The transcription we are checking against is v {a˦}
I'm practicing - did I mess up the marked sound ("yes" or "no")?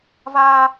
no